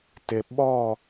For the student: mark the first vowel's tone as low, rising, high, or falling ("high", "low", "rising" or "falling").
low